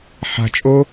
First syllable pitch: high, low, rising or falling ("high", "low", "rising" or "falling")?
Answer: low